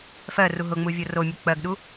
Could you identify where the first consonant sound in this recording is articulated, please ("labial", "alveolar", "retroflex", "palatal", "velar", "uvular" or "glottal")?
labial